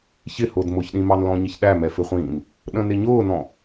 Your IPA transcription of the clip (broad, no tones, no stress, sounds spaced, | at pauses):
ç ɪ h ʊː d m ʊ ç ɗ ĩ m ɑ n l ɔ̃ ɲ ɪ ç ɗ æ m ɛ f ɪ χʷ ĩ n | ɗ ə̃ n ɪ ɲ ʊː n ɔ̃